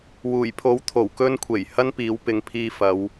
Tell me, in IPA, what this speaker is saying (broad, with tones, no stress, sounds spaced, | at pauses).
w uː˨˩ j pʰ o˨˥ w t̪ʰ o˨˩ w k ɵ˧ n kʷʰ e˨˩ j h ɐ˥ n p iː˨˥ w p ɪ˨˧ ŋ pʰ iː˧ f ɐ˨˧ w